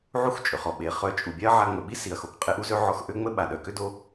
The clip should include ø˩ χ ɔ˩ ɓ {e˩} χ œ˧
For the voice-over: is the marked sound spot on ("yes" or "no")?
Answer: yes